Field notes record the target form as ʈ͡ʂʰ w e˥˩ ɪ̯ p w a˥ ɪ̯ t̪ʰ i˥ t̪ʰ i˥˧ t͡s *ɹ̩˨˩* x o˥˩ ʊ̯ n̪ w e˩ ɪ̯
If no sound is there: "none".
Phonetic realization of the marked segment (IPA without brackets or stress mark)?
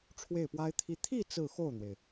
ɹ̩˥˧